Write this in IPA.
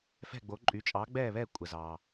fɛ̤˥˨ɡ͡bo˨˥ǃʼy˨˥ t͡ʃʼɑ˨˥ɡ͡bɛː˥˨βɛ˥˨ kʷʼə˨zɑ˨

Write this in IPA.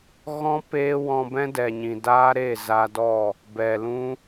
ɣɔ̃˦ peː˦wɔ̃˧ bɛ̃˦dɛ˨ ɲĩ˨daː˦ ɾe˦˨za˧dɔ˦˨ | bɛ˨lũ˦

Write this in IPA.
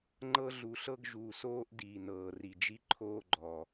ŋ͡ǃɤ˦ ɮu˨ɬɤ˧ɡʒuː˨soː˧ʔ diː˨nɤː˨ri˨d͡ʒi˦ ǃʰoː˧ɡ͡ǃɔ˨

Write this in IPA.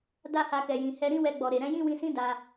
da˦ha˧kɛ˨jĩ˨ hɛ˧ ɾĩ˦wɛ˧ɡ͡bɔ˨ɾe˨ ɾɛ̃˨˦jĩ˦wĩ˧sĩ˦ da˧

